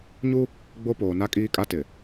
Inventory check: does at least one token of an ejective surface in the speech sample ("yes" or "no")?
yes